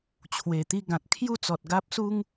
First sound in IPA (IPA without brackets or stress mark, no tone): t͡ɕʰ